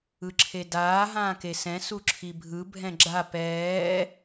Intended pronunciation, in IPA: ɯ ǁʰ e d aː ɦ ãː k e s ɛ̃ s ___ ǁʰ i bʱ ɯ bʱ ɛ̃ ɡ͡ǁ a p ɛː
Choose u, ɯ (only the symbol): u